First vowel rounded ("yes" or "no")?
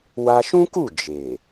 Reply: no